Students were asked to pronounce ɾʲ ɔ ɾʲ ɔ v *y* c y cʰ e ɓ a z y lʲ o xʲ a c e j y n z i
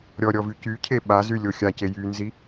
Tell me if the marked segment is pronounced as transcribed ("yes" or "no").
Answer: yes